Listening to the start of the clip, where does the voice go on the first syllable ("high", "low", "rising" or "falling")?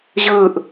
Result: falling